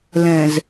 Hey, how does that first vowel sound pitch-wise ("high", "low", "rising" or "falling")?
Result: low